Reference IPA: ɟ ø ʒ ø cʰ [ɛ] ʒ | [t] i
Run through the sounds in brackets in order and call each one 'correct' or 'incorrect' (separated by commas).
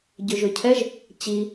correct, incorrect